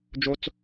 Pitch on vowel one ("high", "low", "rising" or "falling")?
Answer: high